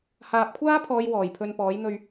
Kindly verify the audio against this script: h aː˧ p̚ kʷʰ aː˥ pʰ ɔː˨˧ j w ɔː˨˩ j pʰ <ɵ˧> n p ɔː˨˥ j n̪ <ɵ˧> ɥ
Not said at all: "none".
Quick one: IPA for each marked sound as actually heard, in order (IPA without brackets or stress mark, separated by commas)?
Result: ɵ˧, ɵ˧